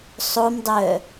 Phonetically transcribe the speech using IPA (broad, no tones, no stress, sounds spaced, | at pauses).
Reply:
sˤ o m dˤ œ